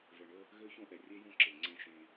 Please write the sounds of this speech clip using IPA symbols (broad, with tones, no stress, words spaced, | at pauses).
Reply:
və˨ɳə˦ | ɣø˦çõ˦ʔɛ˨ rʲe˦jõ˦ǁe˨ ŋ͡ǀẽ˦ ʃẽ˦